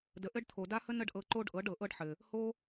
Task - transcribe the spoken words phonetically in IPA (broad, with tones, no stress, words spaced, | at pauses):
də˨ʔɘ˦ɖt̪ʰo˨ da˦hə˦ nə˦ɖʔɤ˧ ǃo˦ɖ ʔɤ˨˦ɖɤ˨ʔɤ˦ɖħɘ˨ | ho˦